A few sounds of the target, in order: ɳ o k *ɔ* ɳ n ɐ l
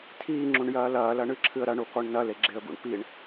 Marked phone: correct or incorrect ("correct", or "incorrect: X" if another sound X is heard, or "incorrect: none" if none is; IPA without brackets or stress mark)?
correct